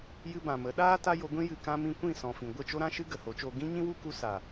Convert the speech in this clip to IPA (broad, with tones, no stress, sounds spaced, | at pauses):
j ɨ˧ b ã˨ m ə˨˦ ɗ aː˦ t a˦ j o˧ ɡʷ ĩ˦ j ɨ˨ k ã˧ m ĩ˧ kʷ ĩ˦˨ s ɔ̃˨ f ĩ˨ ɡʷ ə˦˨ t͡ʃ o˦ ɾ ã˦ ʃ ɨ˦ ɡ ə˨ h o˨˦ t͡ʃ oː˧ ɡ ĩ˦ ɲ ĩ˦ w u˦ k u˧ s a˨